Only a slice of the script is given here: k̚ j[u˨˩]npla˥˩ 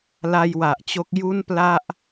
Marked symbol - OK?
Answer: no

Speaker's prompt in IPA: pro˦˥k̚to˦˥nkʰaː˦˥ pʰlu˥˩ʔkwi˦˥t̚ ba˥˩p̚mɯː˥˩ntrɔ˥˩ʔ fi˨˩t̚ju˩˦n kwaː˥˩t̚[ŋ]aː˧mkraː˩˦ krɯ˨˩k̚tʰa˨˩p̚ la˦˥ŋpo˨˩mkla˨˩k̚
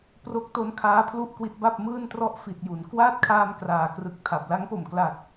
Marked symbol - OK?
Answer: no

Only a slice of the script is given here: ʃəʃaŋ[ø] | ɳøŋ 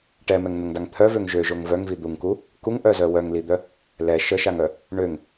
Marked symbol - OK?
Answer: no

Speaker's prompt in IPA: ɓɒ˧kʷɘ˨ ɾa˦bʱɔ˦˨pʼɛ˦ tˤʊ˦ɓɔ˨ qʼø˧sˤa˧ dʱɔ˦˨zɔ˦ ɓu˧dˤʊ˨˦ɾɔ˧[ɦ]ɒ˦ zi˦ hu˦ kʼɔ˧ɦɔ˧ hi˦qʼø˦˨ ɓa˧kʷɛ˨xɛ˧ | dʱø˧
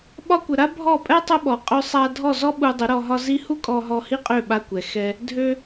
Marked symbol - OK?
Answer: yes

